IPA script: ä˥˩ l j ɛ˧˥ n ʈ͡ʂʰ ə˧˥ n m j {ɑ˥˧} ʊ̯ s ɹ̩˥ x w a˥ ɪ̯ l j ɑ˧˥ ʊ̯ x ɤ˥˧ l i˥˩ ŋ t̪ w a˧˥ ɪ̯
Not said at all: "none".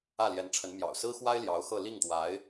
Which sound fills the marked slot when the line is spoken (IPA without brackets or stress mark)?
ɑ̰˨˩